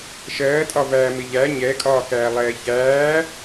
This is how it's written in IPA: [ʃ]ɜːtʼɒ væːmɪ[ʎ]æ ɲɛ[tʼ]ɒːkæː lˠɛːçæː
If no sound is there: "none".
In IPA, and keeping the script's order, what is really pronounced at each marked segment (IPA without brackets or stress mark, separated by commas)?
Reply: ʃ, ʎ, kʼ